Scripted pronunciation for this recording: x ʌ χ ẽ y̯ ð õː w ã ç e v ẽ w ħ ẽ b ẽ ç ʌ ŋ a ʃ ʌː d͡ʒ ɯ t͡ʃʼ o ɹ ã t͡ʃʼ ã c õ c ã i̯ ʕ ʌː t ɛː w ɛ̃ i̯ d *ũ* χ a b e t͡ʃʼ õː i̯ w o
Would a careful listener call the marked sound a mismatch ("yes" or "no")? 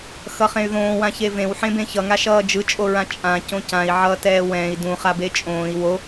no